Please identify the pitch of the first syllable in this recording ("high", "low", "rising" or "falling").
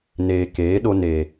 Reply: low